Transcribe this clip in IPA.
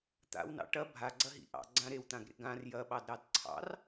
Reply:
t̪a̰wnɑ̰ ʈɐ bʱaɡ͡ǀɐɦḭ ʔɑ̰ɡ͡ǀã ɾewt̪ãɡɾḛ ɡãr jɐɓɑdɾɑd ǀʰɑ̰r

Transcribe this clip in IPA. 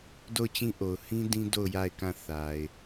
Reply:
do˦˨ʊ̯t͡ɕĩ˦ʔo˨ʊ̯ hĩ˦ dĩ˦do˦˨ʊ̯ ja˦˨ɪ̯kã˦˨ θa˨ɪ̯

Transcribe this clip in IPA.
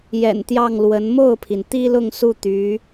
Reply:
jɛ̰˨˩nt̪jɑ˥˩ŋlwə˧˥n mo˥˩ʊ̯pʰi˩nt̪i˥lʊ˥˧ŋ su˥˩t̪y˧˥

